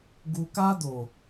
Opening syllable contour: low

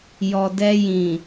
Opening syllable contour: low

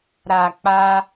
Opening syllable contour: low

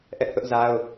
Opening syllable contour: high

